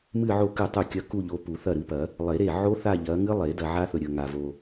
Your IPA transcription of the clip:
m ɨ˥˧ ʕ o˥˩ k ɨ˥˩ tˤ u˥˩ kʲ ɐ˦˥ k u˥˧ ʎ o˨˦ p u˨˩˦ θ ɐ˥˩ ɾ ɨ˨˦ p ɐ˨˩˦ | lˠ e˨˩˦ ɾ e˥˩ ʕ o˦˥ θ a˥˧ ʎ ɐ˨˦ ŋ ɨ˦˥ lˠ e˨˩˦ d ɐ˨ ʕ a˦˥ θ ɵ˨ ɾʲ ɵ˨ ŋ a˨ v o˨

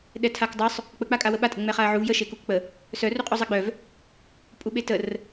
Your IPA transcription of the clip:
ɗ ɛ tʰ a k dˤ œ sˤ | k͡p ə k͡p a kʼ a w ə ɓ a tʼ ə ŋ͡m ɛ χ a ɐ̯ ʕ u v j ə ʃ e k u k k͡p ə | s œ r u qʼ u zˤ e ɡ͡b œ v | pʼ u ɓ e t ə r

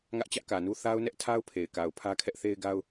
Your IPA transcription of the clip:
ŋ ä˦ ʔ t͡ɕ ä˦ ʔ k ä˨ n u˦ θ a˦ ʊ̯ n ɛ˦ ʔ tʰ a˦ ʊ̯ pʰ e˨ ɪ̯ k a˨ ʊ̯ pʰ ä˦ kʰ ɛ˦ ʔ θ e˦ ɪ̯ ɡ a˦ ʊ̯

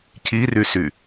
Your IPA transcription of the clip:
c i r y s y

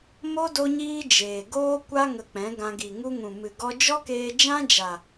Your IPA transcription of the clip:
m o˦ d o˦ ɲ iː˦ d͡ʒ eː˨ ɡ oː˦ kʷ a˦ ŋ ə˧ k͡p ɛ̃˨˦ ɡ ã˧ ɡ i˨ ŋ u˧ ŋ ũ˨ m ɨ˨ ɡ ɔ˧ d͡ʒ ɔ˦ k eː˧ d͡ʒ ã˦ d͡ʒ a˨

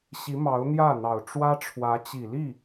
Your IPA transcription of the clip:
ɕ i˧˥ m ɑ˧˥ ʊ̯ n̪ j ä˥˩ n̪ ɑ˨˩ ʊ̯ ʈ͡ʂ w ä˥ ʈ͡ʂʰ w ä˧˥ t͡ɕ i˨˩ l i˥˩

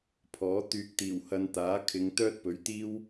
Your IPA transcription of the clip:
pʰ ɔː˨˥ t̪ yː˧ k̚ t̪ iː˨˩ w h ɐ˧ n t̪ aː˨˥ kʰ ɪ˨˧ ŋ t̪ œː˥ t̚ p ɵ˨˥ ɥ t̪ iː˥ w

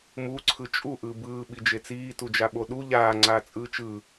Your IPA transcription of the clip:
m u ǀʰ ɯ t͡ʃʼ u ʔ ɯː b ɯː ɓ i d͡ʒ e t͡s iː t u d͡ʒ a ɓ o ɗ u ʎ aː ŋ͡ǀ aː t͡sʼ ɯː t͡ʃ ɯ

